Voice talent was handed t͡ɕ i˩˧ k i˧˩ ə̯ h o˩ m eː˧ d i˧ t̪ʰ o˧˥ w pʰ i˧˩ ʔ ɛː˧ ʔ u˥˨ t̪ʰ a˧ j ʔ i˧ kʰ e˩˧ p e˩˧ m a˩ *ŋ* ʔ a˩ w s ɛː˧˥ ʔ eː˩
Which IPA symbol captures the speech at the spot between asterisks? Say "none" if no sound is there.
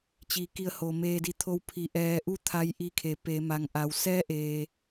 ŋ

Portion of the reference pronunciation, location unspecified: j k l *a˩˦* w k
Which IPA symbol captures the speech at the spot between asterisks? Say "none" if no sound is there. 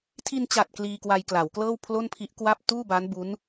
a˩˦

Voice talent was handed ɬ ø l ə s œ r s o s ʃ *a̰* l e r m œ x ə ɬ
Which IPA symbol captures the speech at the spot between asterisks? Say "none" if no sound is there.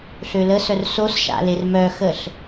a̰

